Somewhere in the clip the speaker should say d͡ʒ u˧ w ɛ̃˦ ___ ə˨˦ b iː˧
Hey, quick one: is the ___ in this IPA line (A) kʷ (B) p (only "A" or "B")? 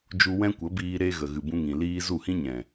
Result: A